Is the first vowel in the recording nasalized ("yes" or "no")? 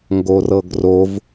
no